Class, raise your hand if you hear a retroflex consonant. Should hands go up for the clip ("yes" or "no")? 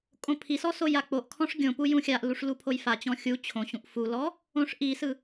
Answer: yes